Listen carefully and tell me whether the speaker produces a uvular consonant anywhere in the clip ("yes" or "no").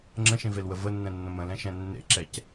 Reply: no